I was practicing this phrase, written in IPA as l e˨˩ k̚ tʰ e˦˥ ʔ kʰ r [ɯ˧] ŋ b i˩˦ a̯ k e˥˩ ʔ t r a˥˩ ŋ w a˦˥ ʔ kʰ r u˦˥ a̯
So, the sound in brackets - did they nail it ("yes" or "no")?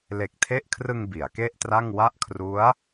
yes